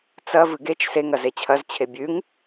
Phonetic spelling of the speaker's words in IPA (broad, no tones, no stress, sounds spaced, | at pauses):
t͡s ɐ v ɨ ɡ e t͡ʃ s e ŋ ɐ z e t͡ɕʰ ɐ z t͡ɕʰ e bʲ ʉ ŋ